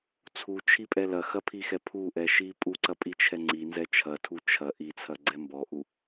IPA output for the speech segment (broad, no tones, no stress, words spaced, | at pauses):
t͡sʰut͡ʃʰipʼɛ lɐxɐpʰixɛ pʰuʔɛʃi pʼuǀɐpʼit͡ʃʰɛ ŋ͡ǀinzɛ t͡ʃʰɐtʰu t͡ʃʰɐ ʔit͡sʰɐɡ͡ǀɛ mbɔʔu